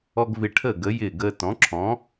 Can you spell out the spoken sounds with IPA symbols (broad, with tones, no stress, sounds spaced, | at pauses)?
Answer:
ɔ˧ ɡ v ɪ˧ ʈʰ əː˥˩ ɡ ə˩˥ j ɪː˥˩ ɡ əː˧ t ɔ̃˩˥ ǁʰ ɔ̃˩˥